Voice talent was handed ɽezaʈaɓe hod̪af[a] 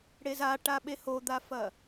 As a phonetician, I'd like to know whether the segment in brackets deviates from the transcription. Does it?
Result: yes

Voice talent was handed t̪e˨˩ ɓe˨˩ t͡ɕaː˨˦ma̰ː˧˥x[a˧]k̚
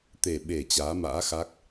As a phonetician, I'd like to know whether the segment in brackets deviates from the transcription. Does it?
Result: yes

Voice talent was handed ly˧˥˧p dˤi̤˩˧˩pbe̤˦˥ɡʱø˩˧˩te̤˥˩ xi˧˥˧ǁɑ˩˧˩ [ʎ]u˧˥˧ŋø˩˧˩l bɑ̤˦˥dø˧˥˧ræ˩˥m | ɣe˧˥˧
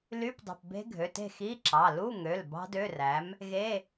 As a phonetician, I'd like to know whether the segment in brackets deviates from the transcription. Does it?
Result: yes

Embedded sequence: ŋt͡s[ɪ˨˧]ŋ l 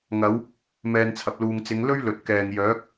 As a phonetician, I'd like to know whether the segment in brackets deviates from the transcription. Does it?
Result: no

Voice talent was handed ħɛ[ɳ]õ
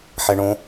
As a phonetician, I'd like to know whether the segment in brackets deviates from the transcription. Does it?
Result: no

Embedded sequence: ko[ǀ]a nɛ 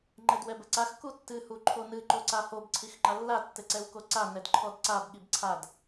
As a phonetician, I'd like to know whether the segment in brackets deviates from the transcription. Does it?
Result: no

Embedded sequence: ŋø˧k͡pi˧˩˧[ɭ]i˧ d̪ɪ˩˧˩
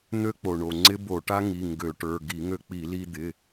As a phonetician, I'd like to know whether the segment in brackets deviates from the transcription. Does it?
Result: yes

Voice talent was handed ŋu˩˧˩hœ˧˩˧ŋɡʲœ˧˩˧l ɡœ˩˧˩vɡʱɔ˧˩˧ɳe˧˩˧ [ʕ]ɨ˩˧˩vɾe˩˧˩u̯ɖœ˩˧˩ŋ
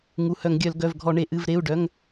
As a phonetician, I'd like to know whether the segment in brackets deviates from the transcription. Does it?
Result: yes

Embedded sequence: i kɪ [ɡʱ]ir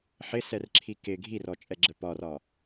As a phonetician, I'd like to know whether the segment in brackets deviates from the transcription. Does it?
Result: no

